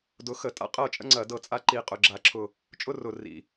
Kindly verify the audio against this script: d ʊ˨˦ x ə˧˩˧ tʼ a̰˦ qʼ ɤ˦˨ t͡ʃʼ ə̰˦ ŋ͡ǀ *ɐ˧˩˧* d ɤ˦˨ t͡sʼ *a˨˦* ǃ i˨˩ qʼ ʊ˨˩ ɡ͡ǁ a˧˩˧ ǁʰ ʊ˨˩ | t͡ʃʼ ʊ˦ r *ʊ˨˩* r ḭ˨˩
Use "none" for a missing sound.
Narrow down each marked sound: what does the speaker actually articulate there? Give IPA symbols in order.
ɐ˧˩˧, a˦, ʊ˨˩

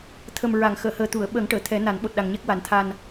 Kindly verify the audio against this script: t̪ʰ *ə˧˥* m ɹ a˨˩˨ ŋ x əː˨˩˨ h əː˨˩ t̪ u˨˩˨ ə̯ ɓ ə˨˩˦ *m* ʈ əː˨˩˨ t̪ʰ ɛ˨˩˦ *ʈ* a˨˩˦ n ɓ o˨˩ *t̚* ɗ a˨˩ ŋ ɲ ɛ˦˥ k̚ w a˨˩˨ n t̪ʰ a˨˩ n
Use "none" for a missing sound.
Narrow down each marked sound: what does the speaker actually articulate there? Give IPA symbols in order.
ə˨˩, ŋ, n, t̚

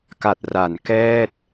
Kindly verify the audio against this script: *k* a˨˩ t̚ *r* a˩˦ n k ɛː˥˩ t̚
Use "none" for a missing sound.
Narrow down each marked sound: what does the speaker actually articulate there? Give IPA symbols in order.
k, r

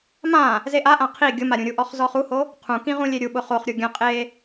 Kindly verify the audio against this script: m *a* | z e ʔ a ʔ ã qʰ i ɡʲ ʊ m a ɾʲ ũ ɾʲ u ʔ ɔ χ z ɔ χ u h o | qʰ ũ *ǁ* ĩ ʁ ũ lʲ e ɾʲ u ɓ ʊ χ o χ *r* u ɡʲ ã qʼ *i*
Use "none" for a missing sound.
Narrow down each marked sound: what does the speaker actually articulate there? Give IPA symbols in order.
ã, k, ɾʲ, e

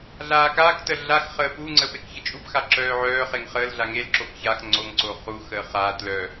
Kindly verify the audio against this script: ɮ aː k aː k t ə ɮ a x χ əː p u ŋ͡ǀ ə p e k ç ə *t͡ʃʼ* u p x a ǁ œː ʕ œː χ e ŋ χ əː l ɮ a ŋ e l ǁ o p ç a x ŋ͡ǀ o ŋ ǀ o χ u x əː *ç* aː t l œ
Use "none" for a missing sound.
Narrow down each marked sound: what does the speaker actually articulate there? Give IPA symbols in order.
t͡ʃʼ, χ

